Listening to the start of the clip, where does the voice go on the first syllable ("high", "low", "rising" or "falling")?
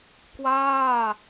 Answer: falling